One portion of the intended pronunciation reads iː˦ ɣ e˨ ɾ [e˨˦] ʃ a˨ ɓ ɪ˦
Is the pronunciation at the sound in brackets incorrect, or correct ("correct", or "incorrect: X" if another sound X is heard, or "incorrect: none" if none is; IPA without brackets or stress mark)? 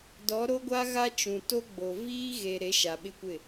correct